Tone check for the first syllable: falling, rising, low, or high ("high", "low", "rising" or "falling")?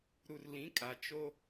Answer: low